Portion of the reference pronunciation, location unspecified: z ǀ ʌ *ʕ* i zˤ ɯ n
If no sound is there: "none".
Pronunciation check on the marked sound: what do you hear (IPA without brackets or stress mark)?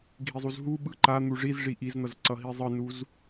ɦ